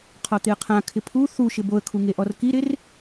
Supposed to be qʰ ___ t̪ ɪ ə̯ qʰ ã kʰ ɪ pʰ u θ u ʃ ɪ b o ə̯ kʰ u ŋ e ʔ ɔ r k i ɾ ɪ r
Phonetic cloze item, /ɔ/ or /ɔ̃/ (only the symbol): ɔ